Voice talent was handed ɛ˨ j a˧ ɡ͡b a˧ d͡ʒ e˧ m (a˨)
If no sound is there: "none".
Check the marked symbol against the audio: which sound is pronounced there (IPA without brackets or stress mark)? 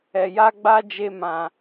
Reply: ã˨